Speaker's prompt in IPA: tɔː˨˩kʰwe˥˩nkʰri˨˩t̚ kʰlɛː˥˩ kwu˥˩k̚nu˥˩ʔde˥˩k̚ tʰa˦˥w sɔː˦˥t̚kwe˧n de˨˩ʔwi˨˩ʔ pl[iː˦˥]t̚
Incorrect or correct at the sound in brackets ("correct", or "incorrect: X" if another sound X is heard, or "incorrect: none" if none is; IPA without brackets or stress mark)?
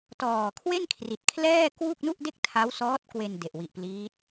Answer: correct